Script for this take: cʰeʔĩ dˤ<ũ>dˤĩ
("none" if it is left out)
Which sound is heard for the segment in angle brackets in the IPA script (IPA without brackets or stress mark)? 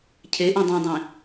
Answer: ũ